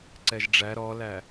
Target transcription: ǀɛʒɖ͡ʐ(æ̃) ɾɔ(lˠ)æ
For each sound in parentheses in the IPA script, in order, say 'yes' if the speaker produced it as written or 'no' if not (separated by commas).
no, no